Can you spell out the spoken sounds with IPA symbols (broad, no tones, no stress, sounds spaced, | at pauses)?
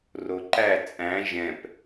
r o ǃ æ t͡sʼ æ̃ ʒ ɛ̃ p